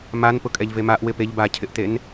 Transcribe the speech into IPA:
m a n p ʊ kʼ ɛ ʎ v e m a ʔ w ɪ p e ʎ b a cʰ ɪ ʔ t e n

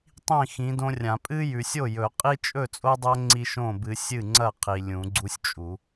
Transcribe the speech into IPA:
tˤ ĩ˥˩ x ĩ˨˦ d õ˦ rʲ ã˨˩˦ pʼ ɨ˦ j ʉ˨ sʲ o˥˩ j ɵ˨˩˦ qʼ i˦ t͡ʃʼ ɵ˥˩ t͡sʼ o˦ dˤ ɐ˦ ŋ͡ǀ i˦ ʃ õ˥˩ b ɨ˨˦ sʲ ɨ˥˩ ŋ͡ǀ ɐ˥˩ qʰ i˨ lʲ ũ˨˩˦ ɡ͡ǀ u˦ sʲ t͡ʃʼ u˨˩˦

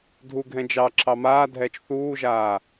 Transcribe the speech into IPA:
dʱ u ɡʱ ɛ̃ d͡ʒ ɑ ǁʰ ɑ m aː dʱ ɛː t͡ʃ θ uː ʒ aː

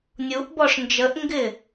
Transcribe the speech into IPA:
nʲ u ʔ b ɔ ʂ n d͡ʒ ə ʔ ŋ ɡ ɪ

